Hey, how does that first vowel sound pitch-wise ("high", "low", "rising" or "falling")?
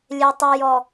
low